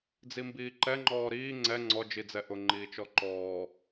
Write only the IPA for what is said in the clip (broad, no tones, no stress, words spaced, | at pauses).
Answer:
d͡zimbiːǃɛŋ͡ǃɔː ɾiː ŋ͡ǀɛ ŋ͡ǀɔd͡ʒid͡zɛ ʔʊŋ͡ǃiːt͡ʃɔ ǃɔː